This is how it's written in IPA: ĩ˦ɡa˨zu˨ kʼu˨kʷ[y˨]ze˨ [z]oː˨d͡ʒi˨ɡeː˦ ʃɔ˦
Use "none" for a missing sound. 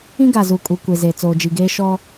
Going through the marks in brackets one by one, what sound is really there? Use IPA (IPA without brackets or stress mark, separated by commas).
e˨, t͡s